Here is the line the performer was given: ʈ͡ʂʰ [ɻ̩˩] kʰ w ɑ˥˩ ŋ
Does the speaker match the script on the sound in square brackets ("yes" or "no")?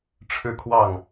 no